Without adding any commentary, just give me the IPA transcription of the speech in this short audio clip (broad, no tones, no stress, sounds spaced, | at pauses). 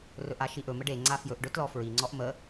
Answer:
r ɵ ʔ a ʃ i ʔ ɵ m ə ɖ e ŋ͡ǀ a f j ɵ ʔ ɖ ɵ t l ɔ f ɹ i ŋ͡ǀ ɔ ʔ m ə